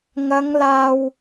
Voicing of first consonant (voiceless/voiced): voiced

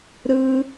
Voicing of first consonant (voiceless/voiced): voiced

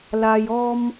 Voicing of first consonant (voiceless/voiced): voiced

